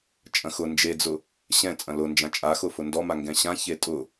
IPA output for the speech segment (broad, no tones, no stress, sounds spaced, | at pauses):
t͡ʃʼ ɐ̃ x ʊ n d͡ʒ e d͡z ʊ | ɕ ɛ̃ t͡sʼ ɐ̃ l ʊ n d͡ʒ ã t͡ʃʼ a x ʊ f ʊ n d ɔ m a ŋ ɡ ɛ̃ ɕ ã ç e tʼ ʊ